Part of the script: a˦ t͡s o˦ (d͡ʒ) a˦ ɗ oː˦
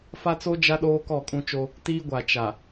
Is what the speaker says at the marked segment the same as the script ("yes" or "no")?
yes